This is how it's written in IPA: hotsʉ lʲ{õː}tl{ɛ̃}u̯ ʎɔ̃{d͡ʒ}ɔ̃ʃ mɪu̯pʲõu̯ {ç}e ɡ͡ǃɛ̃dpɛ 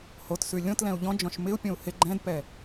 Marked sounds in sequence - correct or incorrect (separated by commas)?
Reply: incorrect, correct, correct, incorrect